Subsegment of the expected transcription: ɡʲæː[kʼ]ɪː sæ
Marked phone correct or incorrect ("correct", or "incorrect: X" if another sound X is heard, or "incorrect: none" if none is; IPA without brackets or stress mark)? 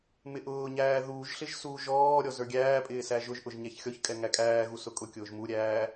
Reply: incorrect: pʼ